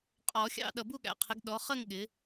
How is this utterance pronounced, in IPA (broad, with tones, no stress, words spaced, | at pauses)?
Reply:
qʼɔ˨˩˦ xʲɑ̰˥˧ ɗʌ˨bu˥˧ɠæ̰˨˦ qʰɪ˨˦ɡɗɔ˨˦ χə˥˧ŋ ɠɪ˨˦